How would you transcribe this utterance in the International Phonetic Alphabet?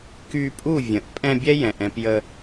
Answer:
k y˧ pʼ u˦˨ vʲ ə̃˨ ʔ pʼ ɛ̃˧ bʲ ɛ˦ j ɛ̃˨ ʔ ɛ̃˧ p j ə˧

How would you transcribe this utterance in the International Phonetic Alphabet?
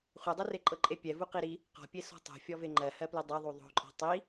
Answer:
χʷ e dˤ u r e ǃʼ ɤ ǃʼ e pʲ ɛ v u q i ɾ i | q ɔ̤ pʲ e s ɔ̤ tˤ o̤ fʲ ɔ v e ŋ͡ǃ ɜ h ɜ p l ɨ dˤ ɛ ðˤ u ðˤ o̤ ǃʼ ɔ̤ tˤ i

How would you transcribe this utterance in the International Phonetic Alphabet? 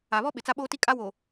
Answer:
a˨ β ɔ˦ ɓ ɪ˨ t͡s a˦ ɓ oː˦ t i˦ kʼ a˦ w o˨

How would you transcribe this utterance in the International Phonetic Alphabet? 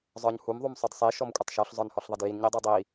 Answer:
zˤ ə˞ ɲ h u m ðˤ u m sˤ ə d sˤ i ʃ ɔ m kʷʼ ə tˤ ʃ ɔ ɬ zˤ ə˞ n h ɔ ɬ ðˤ e d j i n ɲ i dˤ ə˞ dˤ i

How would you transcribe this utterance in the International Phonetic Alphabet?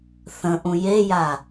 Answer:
θ ə̃ ʔ ũ j e j a

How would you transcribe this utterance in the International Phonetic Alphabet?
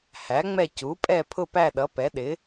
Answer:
h æ˩˥ ŋ͡m ɛ˦˨ c u˩˥ pʼ ɛ˦˨ pʰ ʊ˦˨ p æ˦˨ ɗ ʌ˩˥ p ɛ˩˥ ɗ ɪ˩˥

